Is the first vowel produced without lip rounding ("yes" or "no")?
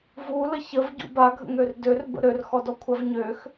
no